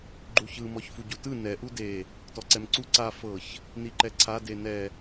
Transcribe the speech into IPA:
ɡ͡ǃuçɯ mɔçfuɟutɯ nɛ ʔude | tɔǀɛmǀu ǀa fɤç | niǃɛǀʰa denɛ

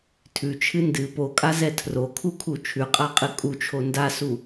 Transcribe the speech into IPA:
tʰʉt͡ʃʰɨ ndɨ pokʼazɛ tʰrokʰukʰu t͡ʃʰʉqʼaqʼɨ kʼut͡ʃʰo ndasu

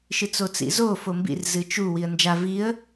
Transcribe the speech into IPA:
ʃɨt͡sot͡sḭzo fombḭr zɨt͡ʃu wiə̯nd͡ʒa viə̯

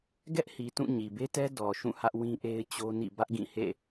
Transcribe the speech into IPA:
ɡɛ˦ʔhi˨tũ˦˨ ɲi˨be˦tɛ˦ dɔ˨ʃũ˦˨ hä˦ʔwĩ˦ʔe˦ɪ̯t͡ɕo˦ nḭ˦˨ bä˦ʔɡĩ˦˨hḛ˦˨

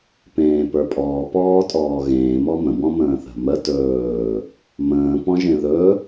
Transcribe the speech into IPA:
pẽːpə˞pʼɔː pɔːtʼɔːɣẽː mɔmə̃ bɔ̃mə̃ːθə̤mə tɵː | mə̃ː pɔ̃ʒẽðɵ

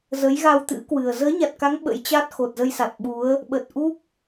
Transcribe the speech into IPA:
zə˨˦jɣa˧w t̪ɨ̰˧˥ kwɨ˨˩ə̯ zəː˨˦ɲa˨˩t̚ka˨˦ŋ ɓə̰˧˥jt͡ɕa˦˥t̚ xo˨˩t̚zə˧jsa˨˩t̚ ɓu˨˦ə̯ | ɓə˨˩t̚ʔu˦˥k̚

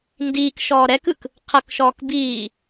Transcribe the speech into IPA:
ndiːkʃɔː ɾɛkɯk | qʰɤkʃɔːk biː

